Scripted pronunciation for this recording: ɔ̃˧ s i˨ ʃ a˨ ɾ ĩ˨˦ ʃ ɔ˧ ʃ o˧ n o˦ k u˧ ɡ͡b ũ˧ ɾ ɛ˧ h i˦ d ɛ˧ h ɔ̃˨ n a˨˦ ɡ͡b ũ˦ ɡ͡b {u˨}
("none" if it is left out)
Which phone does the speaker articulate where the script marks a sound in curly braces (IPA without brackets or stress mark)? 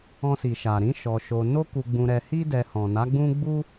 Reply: u˦